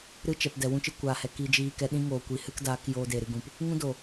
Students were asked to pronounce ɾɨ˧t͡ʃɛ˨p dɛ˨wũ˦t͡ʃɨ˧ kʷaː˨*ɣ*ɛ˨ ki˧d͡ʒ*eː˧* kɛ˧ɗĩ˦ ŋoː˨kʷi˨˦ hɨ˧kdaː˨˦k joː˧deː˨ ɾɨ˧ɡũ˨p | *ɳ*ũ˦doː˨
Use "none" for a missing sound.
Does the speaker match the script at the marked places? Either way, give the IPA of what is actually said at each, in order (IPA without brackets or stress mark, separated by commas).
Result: h, iː˧, ŋ